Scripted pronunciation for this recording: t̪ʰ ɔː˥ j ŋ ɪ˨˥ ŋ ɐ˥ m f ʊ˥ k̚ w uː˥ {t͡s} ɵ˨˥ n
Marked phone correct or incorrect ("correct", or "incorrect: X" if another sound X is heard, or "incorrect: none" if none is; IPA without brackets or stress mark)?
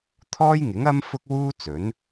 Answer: correct